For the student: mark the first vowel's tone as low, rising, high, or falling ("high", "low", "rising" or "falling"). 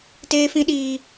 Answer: high